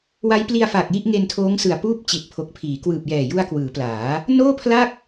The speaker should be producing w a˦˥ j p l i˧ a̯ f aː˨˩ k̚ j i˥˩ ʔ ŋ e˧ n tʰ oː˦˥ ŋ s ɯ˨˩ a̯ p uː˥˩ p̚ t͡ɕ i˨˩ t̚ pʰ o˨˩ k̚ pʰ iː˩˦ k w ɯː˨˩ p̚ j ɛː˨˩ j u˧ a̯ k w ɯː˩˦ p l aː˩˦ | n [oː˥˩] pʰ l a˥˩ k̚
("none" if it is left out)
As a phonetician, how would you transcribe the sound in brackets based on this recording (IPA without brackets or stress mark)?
oː˥˩